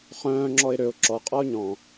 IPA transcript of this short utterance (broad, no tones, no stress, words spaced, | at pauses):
χœ̃ːŋ͡ǁɔɪ̯ ɾøʊ̯ ǁɔqʼɔʊ̯ ɲɔ̃